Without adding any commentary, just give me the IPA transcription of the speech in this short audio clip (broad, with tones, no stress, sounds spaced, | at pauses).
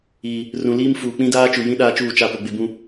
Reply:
iː˨ | r ũ˨ l iː˦ m f uː˨ k͡p ĩ˦ d aː˦ t͡ʃ u˨ j ĩ˦ ɗ aː˦ t͡ʃ uː˦˨ t͡ʃ a˦˨ p o˨ ɡ͡b ɪ˨ b ũ˨